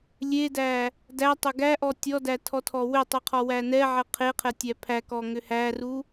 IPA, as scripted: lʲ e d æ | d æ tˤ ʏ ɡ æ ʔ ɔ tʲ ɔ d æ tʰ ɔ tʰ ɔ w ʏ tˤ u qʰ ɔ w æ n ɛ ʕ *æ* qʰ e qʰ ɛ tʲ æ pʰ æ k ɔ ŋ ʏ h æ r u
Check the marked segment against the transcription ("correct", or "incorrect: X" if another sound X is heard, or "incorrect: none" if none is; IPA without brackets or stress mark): incorrect: ɛ